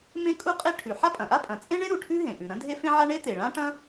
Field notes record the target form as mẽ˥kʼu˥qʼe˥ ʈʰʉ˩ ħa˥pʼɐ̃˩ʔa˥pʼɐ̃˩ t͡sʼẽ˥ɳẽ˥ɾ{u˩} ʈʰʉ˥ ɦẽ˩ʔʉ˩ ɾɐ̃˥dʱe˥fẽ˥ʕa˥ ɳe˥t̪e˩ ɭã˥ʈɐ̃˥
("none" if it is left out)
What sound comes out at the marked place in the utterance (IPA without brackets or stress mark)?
u˩